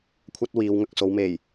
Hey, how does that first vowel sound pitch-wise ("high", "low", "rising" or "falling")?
high